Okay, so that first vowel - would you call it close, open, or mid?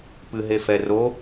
close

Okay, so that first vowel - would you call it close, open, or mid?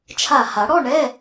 open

